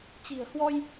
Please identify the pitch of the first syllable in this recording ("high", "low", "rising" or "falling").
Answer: low